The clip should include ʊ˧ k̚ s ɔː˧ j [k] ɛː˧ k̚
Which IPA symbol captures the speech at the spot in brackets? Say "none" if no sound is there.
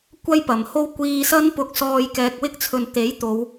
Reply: k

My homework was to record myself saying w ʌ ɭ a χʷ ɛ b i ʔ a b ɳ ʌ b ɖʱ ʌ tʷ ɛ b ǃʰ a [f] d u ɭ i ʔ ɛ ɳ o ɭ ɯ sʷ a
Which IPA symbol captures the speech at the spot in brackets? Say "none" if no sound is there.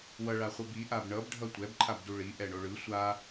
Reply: b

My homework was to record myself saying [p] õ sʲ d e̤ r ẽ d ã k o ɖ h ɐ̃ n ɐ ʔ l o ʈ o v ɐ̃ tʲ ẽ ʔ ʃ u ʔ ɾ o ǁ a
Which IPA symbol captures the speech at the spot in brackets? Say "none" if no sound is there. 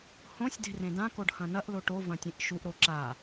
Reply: h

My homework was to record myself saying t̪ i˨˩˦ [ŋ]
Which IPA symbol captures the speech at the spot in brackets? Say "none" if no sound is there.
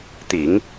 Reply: ŋ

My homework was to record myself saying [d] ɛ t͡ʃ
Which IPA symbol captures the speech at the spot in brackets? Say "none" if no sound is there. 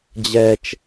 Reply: d͡ʑ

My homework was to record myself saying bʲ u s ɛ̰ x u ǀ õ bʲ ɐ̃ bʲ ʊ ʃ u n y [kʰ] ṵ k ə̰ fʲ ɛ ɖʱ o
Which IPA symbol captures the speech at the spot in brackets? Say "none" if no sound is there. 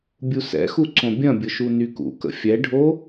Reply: k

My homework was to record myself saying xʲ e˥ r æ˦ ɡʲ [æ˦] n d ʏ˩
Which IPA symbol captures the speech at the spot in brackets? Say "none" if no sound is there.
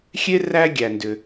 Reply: æ˩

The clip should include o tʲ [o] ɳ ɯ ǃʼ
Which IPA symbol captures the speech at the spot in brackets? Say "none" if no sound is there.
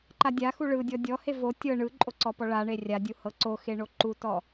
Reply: ɤ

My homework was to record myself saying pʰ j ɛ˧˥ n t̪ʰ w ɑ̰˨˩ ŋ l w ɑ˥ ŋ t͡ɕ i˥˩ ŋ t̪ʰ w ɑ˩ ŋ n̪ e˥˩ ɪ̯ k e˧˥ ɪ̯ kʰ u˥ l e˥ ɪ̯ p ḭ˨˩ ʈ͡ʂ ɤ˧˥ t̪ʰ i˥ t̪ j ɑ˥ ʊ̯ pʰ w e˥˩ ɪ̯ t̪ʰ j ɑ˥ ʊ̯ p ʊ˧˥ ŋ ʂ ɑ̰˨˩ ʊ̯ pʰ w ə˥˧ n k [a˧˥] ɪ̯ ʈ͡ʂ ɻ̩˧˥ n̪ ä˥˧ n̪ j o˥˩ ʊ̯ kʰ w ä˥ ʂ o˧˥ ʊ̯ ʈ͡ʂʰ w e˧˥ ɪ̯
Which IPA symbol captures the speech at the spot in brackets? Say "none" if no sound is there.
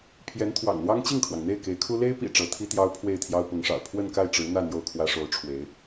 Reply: a˥˩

